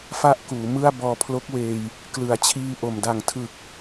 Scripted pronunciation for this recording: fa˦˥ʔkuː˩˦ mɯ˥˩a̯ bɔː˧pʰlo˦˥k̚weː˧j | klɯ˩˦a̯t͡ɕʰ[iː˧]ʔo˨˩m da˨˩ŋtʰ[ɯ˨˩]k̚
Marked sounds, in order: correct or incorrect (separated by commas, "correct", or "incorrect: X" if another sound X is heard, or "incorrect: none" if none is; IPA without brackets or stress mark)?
correct, correct